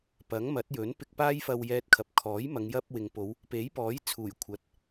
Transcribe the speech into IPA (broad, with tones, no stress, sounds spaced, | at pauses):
p ɐ˨˥ ŋ m ɐ˨˥ t̚ j ɵ˨˥ n p ɪ˧ k̚ p aː˥ j f ɐ˧ w j ɛː˧ t̚ kʰ ɐ˨ p̚ kʰ ɔː˨˥ j m ɐ˨˧ ŋ j ɐ˧ p̚ w ɪ˨ ŋ p o˨˧ w | p e˨˥ j p ɔː˨˥ j t͡sʰ uː˨˩ j kʷʰ ɐ˨ t̚